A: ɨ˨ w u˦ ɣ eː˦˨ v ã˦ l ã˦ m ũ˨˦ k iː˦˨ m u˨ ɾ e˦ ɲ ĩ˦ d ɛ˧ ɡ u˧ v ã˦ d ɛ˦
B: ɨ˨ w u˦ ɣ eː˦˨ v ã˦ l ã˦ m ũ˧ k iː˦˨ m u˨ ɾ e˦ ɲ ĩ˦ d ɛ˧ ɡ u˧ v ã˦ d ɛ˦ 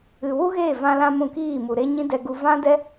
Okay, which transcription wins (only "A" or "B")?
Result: B